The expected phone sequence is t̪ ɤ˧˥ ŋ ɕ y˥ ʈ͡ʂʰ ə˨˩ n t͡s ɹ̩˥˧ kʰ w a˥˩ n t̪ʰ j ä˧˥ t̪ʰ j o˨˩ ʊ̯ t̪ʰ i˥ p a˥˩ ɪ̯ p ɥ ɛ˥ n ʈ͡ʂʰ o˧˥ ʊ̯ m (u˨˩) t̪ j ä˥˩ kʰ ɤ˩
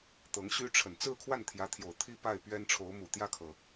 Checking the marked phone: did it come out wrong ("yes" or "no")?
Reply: no